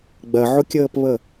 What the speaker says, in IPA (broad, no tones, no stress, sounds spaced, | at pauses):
ɡ͡b ɜ ʕ ʊ kʲ əː p β ə